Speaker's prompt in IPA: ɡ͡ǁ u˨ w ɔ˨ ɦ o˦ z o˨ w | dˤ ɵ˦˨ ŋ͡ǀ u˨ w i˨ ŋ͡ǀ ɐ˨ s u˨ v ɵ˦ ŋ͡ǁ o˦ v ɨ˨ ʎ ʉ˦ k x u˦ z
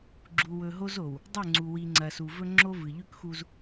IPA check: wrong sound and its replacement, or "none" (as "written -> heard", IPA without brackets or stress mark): ɔ˨ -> ɵ˨